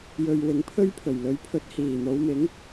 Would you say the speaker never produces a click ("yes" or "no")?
yes